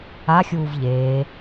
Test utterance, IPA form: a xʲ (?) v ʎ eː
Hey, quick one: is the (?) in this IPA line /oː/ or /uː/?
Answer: uː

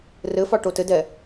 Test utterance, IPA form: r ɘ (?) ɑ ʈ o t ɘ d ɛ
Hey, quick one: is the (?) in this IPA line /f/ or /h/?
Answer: f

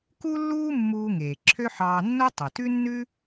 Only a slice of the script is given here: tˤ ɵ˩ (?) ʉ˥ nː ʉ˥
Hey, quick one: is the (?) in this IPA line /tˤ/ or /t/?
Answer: t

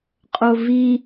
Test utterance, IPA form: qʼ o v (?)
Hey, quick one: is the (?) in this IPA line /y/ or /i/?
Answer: i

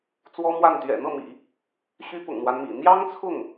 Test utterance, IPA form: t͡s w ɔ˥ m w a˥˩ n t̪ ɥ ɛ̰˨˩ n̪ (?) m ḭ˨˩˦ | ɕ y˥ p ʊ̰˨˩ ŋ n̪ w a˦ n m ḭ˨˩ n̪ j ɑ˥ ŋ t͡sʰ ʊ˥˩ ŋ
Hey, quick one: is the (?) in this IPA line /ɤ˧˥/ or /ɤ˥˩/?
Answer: ɤ˥˩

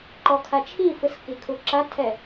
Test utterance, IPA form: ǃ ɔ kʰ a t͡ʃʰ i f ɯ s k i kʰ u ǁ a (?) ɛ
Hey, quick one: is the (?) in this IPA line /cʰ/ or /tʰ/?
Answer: tʰ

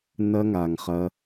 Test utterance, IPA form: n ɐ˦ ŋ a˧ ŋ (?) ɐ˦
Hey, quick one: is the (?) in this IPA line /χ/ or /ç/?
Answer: χ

